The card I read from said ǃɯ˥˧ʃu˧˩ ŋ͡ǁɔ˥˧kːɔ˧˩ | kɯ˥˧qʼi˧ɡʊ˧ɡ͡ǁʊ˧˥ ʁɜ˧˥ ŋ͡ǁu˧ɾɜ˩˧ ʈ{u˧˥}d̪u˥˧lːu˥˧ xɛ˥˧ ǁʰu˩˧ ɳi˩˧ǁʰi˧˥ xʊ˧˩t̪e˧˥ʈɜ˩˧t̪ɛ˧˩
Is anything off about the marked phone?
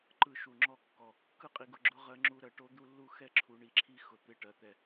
yes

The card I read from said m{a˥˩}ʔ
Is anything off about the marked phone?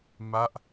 no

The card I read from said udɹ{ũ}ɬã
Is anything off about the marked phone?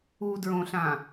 yes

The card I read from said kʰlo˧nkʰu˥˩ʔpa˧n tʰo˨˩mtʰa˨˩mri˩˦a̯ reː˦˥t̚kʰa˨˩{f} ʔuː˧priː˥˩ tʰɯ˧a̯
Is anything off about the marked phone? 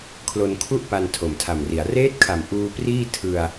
yes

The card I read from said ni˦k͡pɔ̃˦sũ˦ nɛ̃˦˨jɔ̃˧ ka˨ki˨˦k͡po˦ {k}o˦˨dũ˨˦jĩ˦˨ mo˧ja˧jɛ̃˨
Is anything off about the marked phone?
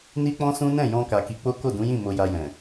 no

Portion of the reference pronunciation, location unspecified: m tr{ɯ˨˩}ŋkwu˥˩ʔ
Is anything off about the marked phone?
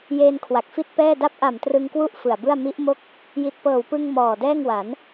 yes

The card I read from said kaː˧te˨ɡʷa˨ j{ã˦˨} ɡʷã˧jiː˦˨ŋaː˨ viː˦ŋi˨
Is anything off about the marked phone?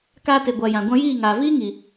yes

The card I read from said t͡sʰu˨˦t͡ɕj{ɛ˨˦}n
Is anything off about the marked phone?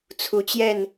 yes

